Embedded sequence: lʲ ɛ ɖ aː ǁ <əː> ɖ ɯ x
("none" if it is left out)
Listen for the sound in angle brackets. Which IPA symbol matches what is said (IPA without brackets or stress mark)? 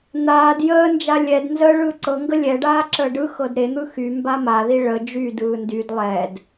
əː